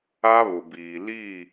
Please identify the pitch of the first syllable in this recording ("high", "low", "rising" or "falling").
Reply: high